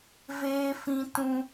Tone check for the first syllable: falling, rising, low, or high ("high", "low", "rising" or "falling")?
high